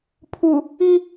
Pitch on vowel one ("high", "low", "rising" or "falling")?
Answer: low